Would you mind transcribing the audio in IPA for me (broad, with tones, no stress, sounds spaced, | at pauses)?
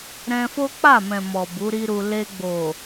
ɾ ɛ̃˧ f o˦ k͡p a˦˨ m ɛ̃˨ m ɔ˨ b u˨˦ ɾ i˦ ɾ u˧ l e˧ ɡ͡b o˨